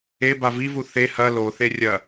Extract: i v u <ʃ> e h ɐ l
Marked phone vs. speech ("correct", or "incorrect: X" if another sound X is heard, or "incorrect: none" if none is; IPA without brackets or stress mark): incorrect: θ